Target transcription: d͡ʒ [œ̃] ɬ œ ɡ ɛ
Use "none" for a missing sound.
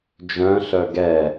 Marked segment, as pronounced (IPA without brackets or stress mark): œ̃